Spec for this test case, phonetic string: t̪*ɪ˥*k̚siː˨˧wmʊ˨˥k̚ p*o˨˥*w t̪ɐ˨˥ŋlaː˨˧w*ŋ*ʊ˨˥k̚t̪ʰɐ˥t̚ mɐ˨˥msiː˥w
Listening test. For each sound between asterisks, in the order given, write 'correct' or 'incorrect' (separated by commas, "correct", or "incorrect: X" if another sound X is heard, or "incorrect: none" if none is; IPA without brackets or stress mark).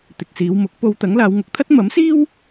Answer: incorrect: ɪ˨, incorrect: o˧, correct